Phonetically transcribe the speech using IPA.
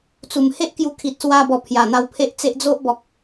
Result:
t͡s u˨˩ m h e˦ ʔ k j u˧ kʰ i˨ t̚ s w a˧ b ɔ˨˩ pʰ j a˨˩ n̪ a˧ w pʰ e˦ ʔ t͡s e˦ ʔ d͡z o˦ ʔ b ɔ˨ k̚

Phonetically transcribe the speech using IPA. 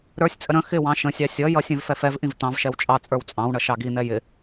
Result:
ɾ ə˞ sʲ t͡sʼ ə ɾ ə̃ x ɪ w ɑ̃ ʃ ə̃ sʲ ɑ sʲ ʌ j ʌ sʲ ɛ̃ v f ɛ f ɛ v ʔ ĩ v t̪ ɑ̃ v ʃ ɛ w t͡ʃʼ ɑ t͡sʼ ə˞ w t͡sʼ ɑ̃ w ɳ ʌ ʃ ɑ ɡ i n̪ ɛ j ɪ

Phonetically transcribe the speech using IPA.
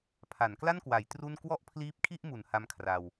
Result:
pʰ a˩˦ n k l a˥˩ n k w a˩˦ j t r u˥˩ n k w ɔ˥˩ ʔ pʰ l iː˦˥ p̚ kʰ i˥˩ ʔ m u˩˦ n h a˦˥ m kʰ r a˧ w

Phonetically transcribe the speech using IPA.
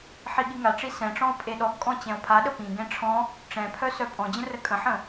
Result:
ħ i ɠ i ŋ a ʈ͡ʂ i s ɛ̃ ʈ͡ʂ ɔ̃ o̯ pʼ e ɗ ɔ ɡ kʼ ɔ̃ t͡ɕ ɛ̃ o̯ pʰ a ɗ ə p ĩ ɡ ɛ̃ ʈ͡ʂʰ ɔ̃ | ʈ͡ʂ ɛ̃ pʰ œ s œ pʼ ɔ̃ d͡ʑ ə̃ r ə kʼ ə̃ ħ ə̃

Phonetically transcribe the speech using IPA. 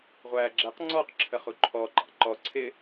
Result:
ʁʷ æː ɡ͡ǁ ɛ q ŋ͡ǀ ɔː q ǁʰ ə χ u ǃʰ ɔ ǃ ɑ̰ ǃ ɔ ǀʰ ɪ

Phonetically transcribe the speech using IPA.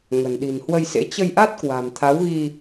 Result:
ŋ ə̤˨˩ n ɗ i̤˨˩ n h w ə˧ j s ḛ˧˥ t͡ɕ ə˧ j ʔ a˦˥ t̚ k w a̤˨˩ m t̪ʰ a˨˦ w ɣ i˧

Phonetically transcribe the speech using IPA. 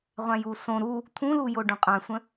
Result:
ʁʷ ã j u s õ ɾ u | t̪ʰ ũ l u j o ɖ ũ qʼ ã sʷ ə̃

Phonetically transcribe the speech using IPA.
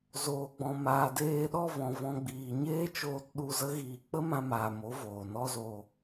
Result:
z oː˨ ɡ͡b ɔ̃˨ m aː˨ d eː˧ ɗ ɔ˦˨ v ɔ̃˨ v ɔ̃˧ ɡ͡b iː˨ ɲ eː˦ t͡ʃ oː˧ t ɗ u˧ z ə˦ ɣ iː˧ k͡p ə˦ m ã˧ m aː˨ m o˨˦ v oː˨ n ɔ˦ z o˧

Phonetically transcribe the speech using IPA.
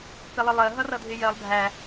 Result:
p ɪ lˠ ɪ lˠ ɜ ɦ ʌ r ʌ dʱ ɪ j ɜ lˠ bʱ æ

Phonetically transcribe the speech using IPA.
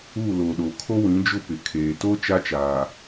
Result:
uː˦˨ l oː˨ ɗ oː˨ kʰ o˦ w ĩ˨˦ d͡ʒ ʊ˦ p ɪ˨ kʰ eː˨ t o˦ t͡ʃ a˦ t͡ʃ aː˨

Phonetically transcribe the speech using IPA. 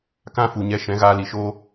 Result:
k ã˦ f u˨ ɲ ɛ˧ ʃ ɛ̃˨˦ ɣ aː˧ l i˨ ʃ oː˦

